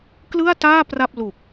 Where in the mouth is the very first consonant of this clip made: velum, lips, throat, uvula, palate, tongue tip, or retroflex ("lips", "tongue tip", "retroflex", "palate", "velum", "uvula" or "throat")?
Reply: velum